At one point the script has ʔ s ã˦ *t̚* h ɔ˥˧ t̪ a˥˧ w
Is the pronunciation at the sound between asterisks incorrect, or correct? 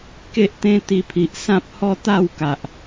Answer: incorrect